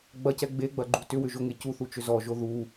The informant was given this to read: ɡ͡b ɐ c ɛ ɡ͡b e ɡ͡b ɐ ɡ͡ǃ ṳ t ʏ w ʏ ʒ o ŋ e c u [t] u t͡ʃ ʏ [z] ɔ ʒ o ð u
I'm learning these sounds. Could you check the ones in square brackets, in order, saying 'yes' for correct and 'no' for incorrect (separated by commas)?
no, yes